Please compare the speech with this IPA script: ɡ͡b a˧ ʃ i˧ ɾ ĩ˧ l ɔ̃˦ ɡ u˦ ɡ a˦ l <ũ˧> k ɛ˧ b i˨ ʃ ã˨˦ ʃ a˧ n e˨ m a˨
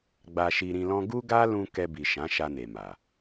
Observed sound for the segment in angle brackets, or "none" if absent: ũ˧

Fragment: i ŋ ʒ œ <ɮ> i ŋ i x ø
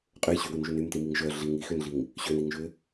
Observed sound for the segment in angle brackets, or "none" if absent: ɮ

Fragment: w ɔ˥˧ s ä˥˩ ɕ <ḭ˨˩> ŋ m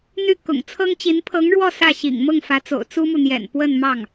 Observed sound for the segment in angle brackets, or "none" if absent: ḭ˨˩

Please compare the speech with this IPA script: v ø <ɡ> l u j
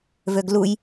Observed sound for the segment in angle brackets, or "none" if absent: ɡ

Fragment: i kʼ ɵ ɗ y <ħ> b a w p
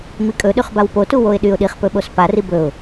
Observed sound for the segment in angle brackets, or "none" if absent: χ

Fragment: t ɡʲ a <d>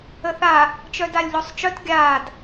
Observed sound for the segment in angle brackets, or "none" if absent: d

